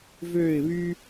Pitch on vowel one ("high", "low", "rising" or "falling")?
falling